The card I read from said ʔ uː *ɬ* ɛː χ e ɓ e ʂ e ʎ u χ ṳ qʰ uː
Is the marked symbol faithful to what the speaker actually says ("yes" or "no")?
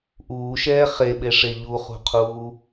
no